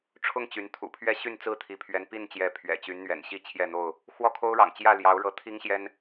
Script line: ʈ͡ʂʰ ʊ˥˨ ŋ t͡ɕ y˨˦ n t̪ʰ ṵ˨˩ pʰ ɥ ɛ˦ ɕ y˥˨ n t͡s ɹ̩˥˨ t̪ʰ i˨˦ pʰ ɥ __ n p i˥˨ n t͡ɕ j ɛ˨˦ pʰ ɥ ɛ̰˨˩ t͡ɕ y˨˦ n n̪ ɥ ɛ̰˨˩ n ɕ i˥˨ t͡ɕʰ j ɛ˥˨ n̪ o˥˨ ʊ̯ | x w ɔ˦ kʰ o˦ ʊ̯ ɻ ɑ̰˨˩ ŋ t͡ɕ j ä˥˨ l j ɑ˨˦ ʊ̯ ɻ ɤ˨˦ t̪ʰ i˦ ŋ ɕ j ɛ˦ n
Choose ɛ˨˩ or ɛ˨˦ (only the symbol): ɛ˨˦